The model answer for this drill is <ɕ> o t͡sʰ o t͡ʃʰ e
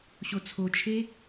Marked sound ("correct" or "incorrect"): correct